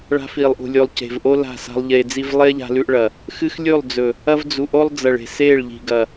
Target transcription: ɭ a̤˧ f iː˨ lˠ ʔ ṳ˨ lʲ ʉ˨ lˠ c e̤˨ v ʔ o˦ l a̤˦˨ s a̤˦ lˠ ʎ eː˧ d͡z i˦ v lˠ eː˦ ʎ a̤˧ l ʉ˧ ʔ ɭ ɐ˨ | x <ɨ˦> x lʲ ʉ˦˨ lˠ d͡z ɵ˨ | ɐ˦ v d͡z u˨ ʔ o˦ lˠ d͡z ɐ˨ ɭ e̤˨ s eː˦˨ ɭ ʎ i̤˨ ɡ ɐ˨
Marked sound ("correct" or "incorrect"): correct